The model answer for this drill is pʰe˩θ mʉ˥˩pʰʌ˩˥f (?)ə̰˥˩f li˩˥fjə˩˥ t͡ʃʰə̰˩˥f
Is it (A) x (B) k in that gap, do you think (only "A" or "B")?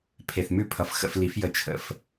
A